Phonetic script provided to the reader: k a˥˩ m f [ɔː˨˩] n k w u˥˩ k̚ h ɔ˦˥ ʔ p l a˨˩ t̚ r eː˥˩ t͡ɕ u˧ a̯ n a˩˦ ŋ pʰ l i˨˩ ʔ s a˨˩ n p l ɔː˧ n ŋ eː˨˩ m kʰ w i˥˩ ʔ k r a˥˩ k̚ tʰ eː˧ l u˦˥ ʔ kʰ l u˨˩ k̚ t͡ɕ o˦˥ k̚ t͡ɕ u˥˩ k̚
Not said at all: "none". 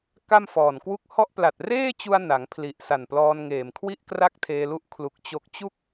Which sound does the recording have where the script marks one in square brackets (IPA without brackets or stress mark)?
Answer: ɔː˨˩